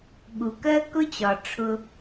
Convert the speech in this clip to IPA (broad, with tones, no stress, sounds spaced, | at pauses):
ɠ u˩ k ɜ˥ k ʊ˥ t͡ɕ ɒ˩ ʈ͡ʂʰ ʊ˧